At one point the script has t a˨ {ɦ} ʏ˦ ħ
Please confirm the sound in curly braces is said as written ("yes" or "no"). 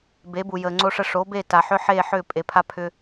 no